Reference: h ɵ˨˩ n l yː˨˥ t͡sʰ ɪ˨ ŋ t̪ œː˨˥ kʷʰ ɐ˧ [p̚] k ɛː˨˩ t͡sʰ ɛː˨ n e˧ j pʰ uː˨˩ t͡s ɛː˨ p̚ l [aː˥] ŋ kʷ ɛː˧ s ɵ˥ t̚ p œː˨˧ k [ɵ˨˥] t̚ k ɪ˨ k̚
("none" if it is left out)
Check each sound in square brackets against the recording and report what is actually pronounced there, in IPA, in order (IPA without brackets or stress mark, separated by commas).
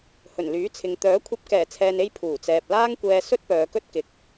p̚, aː˥, ɵ˥